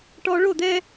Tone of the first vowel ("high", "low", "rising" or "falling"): high